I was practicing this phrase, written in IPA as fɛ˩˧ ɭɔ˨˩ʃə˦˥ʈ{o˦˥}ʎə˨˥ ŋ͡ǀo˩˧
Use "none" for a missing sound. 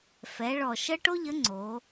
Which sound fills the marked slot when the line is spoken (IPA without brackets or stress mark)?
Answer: o˦˥